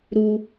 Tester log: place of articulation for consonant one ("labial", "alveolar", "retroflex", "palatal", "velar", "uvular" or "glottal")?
alveolar